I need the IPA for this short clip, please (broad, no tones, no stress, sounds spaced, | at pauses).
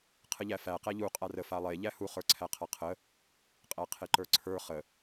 qʰ ə ʎ æ f æ q æ ʎ u qʼ a r ə f a lˠ e ʎ æ h u χ ə˞ ǀʰ æ qʰ a qʰ ə | qʼ æ qʰ e ǃ ə˞ ǀʰ ə˞ χ ə